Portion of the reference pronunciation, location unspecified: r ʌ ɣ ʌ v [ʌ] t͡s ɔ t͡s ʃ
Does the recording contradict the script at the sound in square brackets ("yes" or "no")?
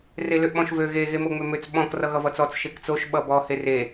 no